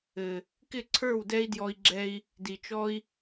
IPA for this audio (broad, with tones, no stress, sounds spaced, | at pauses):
ɘ˨ | k ɪ˦˨ ǀʰ ə˞˦˨ w d ɛ˦ i̯ d j ɔ˧ i̯ ɡ͡ǁ ɛ˧ i̯ | d i˨ t͡ʃ ɔ˦ i̯